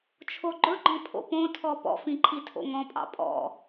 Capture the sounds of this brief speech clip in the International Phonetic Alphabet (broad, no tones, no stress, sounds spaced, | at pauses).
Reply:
t͡ʃʰ o ɡ͡ǃ ɵ ɡ͡ǃ ɔ̃ pʰ o̰ p õ tʰ ɔ p ɔ̰ f ĩ ǃʰ i tʰ o̰ ŋ ɔ̃ pʼ ɑ̰ pʼ ɔ̰